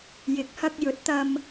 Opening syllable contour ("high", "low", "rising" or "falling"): rising